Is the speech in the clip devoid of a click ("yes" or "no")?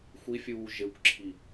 no